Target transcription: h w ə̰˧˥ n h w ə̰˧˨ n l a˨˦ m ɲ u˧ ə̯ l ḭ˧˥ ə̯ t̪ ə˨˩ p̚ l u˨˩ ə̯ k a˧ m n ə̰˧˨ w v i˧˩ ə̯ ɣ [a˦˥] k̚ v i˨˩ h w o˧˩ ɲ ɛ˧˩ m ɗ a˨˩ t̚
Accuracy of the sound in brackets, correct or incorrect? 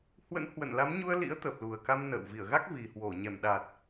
correct